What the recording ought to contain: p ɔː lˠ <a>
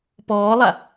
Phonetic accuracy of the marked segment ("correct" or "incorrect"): correct